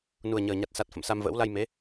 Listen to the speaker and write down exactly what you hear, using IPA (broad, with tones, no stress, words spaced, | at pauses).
nu˨˩ə̯ɲəː˨˩ɲa˨˩t̚ sa˨˩t̚ fə̰˧˨msa˧mvə̰ː˧˥w la˧j me˨˦